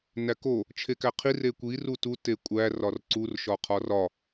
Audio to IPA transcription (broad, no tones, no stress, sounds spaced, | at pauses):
n æ k o | t͡ʃʰ e k æ qʰ i r e kʷ i r u t u t e kʷʼ æ r ɒ r ǀ u r ʃ ɒ qʰ ɒ r ɒ